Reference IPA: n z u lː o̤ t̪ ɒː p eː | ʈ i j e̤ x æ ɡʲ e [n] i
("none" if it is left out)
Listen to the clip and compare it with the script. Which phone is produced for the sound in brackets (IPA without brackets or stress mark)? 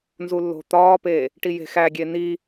n